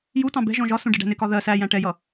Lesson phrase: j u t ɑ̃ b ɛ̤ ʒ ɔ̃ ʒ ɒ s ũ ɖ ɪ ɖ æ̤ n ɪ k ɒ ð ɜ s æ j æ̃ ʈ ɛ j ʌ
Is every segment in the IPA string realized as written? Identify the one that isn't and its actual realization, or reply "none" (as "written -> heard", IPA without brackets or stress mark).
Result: none